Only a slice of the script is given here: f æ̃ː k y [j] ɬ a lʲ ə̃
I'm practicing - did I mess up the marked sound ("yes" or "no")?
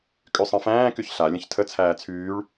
yes